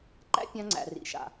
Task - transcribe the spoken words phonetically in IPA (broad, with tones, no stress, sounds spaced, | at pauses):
ǃ æ̰˦ pʲ ã˦ ŋ͡ǀ æ̰˨ r ḭ˨ ʃ a̰˨